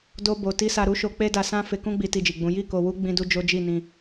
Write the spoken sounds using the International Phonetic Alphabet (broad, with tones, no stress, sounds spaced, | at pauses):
d o˧ b o˨ t i˧ s a˧ ɾ u˦ ʃ o˧ k͡p e˦ d a˧ s ã˦ f e˧ k ũ˦ ɡ͡b i˧ t i˧ d͡ʒ i˨ ɡ͡b ũ˨˦ j i˦˨ k o˧ w u˦ ɡ͡b ĩ˦ d u˦ d͡ʒ o˦ d͡ʒ i˦˨ n ĩ˧